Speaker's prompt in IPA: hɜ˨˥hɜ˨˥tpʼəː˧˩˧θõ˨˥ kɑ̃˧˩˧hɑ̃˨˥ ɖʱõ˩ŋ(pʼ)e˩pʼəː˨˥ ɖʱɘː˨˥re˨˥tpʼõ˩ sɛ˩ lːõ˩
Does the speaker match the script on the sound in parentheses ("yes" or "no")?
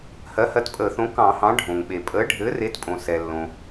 no